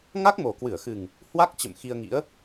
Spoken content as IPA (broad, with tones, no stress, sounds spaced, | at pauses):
ŋ a˦˥ k̚ m o˨˩ k w ɨ˧˩ ə̯ x ɨ˨˩ ŋ | h w a˦˥ k̚ t͡ɕ ə̰˧˨ m x i˧ ə̯ ŋ ḭ˧˥ ə̯